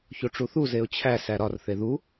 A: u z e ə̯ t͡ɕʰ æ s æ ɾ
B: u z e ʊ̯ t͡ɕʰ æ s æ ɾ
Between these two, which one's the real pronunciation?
B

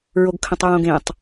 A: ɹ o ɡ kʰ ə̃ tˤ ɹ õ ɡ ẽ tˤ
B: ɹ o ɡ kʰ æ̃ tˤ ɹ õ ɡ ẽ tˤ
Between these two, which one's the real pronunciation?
A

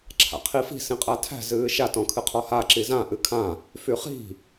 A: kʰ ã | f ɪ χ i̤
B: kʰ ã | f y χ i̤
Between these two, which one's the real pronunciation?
B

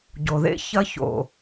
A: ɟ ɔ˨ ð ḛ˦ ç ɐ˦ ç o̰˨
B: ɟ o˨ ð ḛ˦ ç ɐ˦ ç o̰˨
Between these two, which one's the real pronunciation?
B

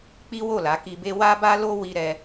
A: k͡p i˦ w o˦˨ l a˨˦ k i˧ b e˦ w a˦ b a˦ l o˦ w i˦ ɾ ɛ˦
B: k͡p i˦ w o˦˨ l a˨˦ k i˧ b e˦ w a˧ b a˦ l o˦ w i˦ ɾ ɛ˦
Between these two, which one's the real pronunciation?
A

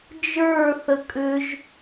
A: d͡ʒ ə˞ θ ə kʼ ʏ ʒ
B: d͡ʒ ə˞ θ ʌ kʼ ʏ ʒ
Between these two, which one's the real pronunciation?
A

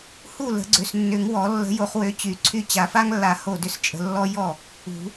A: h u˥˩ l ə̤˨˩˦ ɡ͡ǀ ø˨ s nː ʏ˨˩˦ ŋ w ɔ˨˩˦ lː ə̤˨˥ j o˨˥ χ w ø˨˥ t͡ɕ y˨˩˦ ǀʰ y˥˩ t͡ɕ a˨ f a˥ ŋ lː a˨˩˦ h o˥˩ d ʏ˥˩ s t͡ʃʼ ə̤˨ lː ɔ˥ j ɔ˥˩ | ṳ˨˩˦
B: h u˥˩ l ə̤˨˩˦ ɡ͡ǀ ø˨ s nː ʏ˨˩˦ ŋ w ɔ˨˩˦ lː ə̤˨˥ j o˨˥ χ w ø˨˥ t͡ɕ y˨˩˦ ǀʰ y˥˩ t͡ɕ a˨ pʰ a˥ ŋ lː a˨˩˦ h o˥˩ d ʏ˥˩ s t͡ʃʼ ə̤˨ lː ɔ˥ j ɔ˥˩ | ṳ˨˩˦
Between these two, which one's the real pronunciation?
A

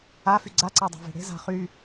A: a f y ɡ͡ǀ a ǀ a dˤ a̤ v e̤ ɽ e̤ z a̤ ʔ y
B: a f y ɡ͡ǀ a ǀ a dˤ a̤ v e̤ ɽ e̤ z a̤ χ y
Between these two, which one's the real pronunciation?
B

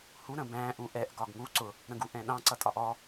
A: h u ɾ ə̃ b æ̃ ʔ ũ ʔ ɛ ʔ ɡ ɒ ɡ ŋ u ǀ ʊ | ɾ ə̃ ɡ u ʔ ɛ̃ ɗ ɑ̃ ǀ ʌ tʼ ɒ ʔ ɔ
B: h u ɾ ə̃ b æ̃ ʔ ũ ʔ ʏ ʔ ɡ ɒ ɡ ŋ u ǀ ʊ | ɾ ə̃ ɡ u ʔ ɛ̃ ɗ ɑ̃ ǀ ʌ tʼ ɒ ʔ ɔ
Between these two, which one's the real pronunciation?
A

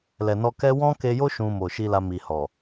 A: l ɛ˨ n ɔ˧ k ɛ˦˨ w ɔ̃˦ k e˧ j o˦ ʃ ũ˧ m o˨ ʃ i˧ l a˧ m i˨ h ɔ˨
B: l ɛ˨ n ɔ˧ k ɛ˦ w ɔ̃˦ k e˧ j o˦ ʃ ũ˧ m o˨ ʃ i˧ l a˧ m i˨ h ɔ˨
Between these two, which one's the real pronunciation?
B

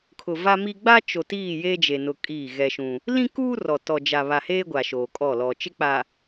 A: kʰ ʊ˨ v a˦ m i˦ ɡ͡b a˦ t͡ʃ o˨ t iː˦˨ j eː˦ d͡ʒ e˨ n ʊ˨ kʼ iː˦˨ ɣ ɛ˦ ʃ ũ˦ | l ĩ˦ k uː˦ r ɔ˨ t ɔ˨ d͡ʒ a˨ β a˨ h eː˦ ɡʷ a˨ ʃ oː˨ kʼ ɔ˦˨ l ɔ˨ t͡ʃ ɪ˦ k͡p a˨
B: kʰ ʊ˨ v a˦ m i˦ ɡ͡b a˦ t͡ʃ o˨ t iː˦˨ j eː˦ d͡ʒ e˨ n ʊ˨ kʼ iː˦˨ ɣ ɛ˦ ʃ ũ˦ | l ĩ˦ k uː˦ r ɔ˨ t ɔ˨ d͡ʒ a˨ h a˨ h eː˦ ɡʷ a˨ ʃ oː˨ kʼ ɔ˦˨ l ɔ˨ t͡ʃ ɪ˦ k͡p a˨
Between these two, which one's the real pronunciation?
A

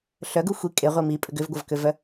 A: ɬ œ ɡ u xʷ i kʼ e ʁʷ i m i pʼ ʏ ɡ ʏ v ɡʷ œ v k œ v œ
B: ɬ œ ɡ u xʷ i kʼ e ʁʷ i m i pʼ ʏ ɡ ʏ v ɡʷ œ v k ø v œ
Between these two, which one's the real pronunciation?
B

